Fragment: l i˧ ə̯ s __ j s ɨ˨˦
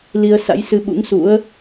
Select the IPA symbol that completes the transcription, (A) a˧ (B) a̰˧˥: B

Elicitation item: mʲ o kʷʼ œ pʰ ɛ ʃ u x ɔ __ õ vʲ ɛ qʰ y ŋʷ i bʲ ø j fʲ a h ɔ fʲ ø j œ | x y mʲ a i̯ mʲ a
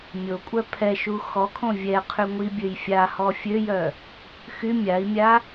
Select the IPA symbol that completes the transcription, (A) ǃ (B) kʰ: B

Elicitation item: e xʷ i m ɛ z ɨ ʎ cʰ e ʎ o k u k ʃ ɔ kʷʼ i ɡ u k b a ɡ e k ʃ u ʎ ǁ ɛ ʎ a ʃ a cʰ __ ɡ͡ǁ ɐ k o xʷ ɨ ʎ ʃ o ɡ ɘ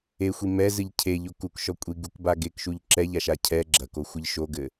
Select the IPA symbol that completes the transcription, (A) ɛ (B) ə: A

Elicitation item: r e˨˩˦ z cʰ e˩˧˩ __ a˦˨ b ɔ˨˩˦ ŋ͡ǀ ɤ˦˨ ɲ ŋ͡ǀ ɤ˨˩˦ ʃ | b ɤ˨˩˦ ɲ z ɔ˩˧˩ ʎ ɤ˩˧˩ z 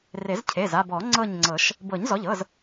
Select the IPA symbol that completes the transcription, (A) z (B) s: A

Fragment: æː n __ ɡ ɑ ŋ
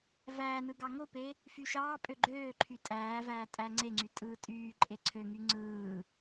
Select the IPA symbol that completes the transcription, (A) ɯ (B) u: A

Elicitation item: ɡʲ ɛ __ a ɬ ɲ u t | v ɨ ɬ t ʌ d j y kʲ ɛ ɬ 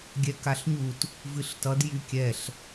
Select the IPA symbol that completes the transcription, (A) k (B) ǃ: A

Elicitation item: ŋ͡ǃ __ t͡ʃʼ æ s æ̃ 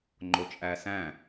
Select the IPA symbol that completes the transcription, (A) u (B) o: B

